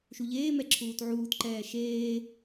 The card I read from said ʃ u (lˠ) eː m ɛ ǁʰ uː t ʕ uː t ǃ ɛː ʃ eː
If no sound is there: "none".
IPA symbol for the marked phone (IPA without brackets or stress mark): ʎ